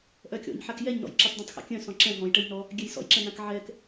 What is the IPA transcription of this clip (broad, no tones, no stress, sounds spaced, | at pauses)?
ʔ œ kʲ ɔ̰ ɲ ħ a k j ɛ ɲ n ɔ̰ j ǁ y tˤ d ɛ̃ tˤ x a̰ kʲ œ̃ s ɔ̃ ǁ ɛ̃ ɦ ɔ̃ j ʈ ə j n ɔ | ɡʲ ɛ j s ɔ̰ j ǁ ɛ̃ n ã k ʕ ɛ k